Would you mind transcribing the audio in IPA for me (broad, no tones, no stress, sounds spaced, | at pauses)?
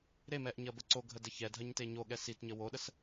ɾ e m ɛ ʔ ɲ ɐ b ə ǀ o ɡʱ ə d ə ç ɛ dʱ ɐ ɲ t e ɲ o ɠ ɛ s i t ɲ ə w o ɗ ə s